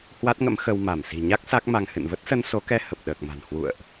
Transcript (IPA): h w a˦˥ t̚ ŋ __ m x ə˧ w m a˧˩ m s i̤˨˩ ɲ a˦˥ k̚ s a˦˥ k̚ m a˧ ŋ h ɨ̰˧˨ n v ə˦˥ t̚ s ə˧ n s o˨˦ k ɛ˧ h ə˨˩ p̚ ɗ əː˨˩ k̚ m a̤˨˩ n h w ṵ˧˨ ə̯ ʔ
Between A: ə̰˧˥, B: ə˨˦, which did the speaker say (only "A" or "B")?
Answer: A